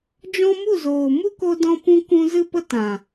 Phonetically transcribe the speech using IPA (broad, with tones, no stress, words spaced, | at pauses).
d͡ʒɔ̃˦ mu˦˨zoː˨mu˦ko˧ dɔ̃˦pũ˦kũ˦ zɨ˦pə˦tã˨